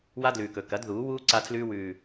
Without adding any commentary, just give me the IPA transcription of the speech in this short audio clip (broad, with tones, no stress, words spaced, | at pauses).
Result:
wa˦dlʉː˨kɵ˨ kɐ˨˦dðuː˨˦wuː˦ ǀa˦tʰlʉː˦wʉː˨